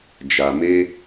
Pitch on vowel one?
low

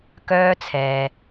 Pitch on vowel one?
high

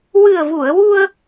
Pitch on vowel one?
low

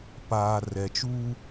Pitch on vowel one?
low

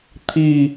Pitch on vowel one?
falling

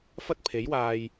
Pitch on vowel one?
high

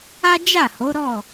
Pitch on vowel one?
high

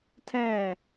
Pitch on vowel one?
falling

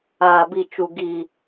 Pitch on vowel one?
low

